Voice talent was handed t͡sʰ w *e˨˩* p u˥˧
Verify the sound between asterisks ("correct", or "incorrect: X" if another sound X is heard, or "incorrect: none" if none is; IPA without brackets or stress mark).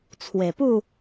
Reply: correct